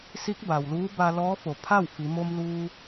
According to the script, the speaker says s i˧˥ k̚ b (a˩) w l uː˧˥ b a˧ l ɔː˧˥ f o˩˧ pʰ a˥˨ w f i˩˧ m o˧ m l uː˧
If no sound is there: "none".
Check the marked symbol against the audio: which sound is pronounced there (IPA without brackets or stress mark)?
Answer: a˩